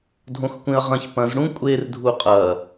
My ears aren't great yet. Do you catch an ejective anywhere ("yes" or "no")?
yes